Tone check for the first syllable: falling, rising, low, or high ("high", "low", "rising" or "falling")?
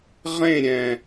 falling